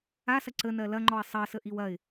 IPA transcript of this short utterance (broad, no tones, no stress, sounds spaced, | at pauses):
a s ɐ ǀ ə n ɜ l ɐ ŋ͡ǃ ɔ ɪ̯ sˤ ɜ s ə ʔ i w ɐ ɪ̯